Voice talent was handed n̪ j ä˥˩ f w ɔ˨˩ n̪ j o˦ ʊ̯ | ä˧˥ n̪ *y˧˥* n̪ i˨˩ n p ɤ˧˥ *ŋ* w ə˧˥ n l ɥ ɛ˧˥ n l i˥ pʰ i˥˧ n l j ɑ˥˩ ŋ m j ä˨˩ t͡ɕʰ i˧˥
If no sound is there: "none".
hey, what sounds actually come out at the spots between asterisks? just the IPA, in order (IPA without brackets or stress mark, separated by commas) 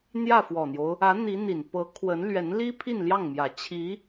i˧˥, kʰ